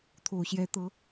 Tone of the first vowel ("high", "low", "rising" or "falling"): low